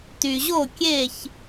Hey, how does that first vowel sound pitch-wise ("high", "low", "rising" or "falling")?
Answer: low